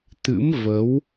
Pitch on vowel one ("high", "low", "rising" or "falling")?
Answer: rising